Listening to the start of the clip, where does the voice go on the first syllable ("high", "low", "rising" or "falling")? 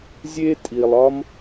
high